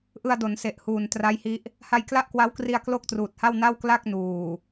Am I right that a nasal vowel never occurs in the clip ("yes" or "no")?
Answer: yes